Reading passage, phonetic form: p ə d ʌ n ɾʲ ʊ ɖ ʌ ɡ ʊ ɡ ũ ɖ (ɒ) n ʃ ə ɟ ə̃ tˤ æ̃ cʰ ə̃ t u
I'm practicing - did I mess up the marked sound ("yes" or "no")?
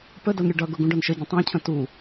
no